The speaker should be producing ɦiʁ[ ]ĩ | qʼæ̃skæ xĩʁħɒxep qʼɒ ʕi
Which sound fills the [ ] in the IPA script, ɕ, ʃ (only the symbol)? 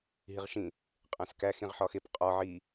ʃ